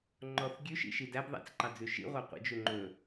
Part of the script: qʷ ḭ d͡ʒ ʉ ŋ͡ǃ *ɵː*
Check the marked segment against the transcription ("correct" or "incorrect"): incorrect